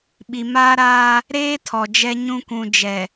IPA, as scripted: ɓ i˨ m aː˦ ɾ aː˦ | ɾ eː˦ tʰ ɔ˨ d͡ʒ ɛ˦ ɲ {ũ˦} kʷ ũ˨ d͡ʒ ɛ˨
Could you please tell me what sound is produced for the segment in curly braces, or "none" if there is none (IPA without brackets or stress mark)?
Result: ũ˦